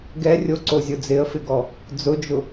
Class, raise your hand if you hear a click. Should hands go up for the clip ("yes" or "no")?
yes